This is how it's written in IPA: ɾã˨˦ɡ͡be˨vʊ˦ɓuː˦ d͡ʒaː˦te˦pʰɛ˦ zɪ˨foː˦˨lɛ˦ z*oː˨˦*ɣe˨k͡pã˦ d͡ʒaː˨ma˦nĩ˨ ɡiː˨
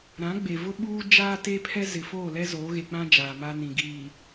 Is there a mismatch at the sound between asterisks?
no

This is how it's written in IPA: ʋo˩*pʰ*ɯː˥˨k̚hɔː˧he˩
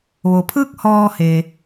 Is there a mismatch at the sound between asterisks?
no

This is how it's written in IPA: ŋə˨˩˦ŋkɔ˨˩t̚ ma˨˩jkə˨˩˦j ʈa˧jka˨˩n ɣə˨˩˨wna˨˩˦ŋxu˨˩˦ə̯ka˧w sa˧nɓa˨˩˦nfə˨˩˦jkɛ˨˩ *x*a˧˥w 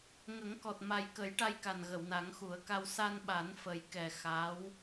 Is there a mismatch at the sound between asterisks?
no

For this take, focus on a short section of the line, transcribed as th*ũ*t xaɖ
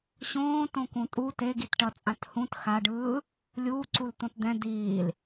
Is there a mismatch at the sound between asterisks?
no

